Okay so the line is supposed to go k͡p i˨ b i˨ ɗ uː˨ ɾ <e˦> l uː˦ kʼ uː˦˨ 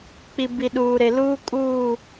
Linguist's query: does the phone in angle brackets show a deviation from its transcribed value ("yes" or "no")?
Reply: yes